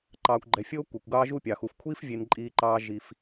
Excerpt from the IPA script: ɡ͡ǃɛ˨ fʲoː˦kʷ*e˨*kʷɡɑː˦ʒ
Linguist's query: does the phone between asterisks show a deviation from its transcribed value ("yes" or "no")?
no